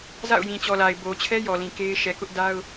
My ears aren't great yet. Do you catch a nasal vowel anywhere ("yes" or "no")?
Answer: yes